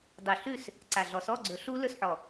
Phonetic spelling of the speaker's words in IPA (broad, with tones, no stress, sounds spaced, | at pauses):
dˤ ɵ˨˩ ɬ ʉ˦˨ s | ǀ a˨˩ ɮ ɔ˨˩ s ɔ˧˥˧ ɡ͡ǀ ɵ˨˩˦ ɬ u˦˥ l ɵ˦˨ s ħ ɔ˨˩